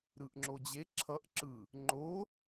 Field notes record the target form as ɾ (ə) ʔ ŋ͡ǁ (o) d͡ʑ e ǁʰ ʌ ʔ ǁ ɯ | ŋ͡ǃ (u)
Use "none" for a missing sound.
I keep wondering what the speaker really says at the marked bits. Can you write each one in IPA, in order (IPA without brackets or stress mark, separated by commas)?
ɯ, o, o